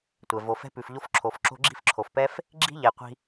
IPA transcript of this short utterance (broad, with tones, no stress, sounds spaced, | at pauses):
tʷ ɛ˩ v o˩ f ɛ̤˧ p ʉ˩ f ʎ o˧ f ǁʰ o˩ f ǁ o̤˧ ɡ͡ǁ i̤˧ f ǁʰ o˩ f p ɛ˧ f | ɡ͡ǁ i̤˥ ʎ ɛ˩ qʷ i̤˧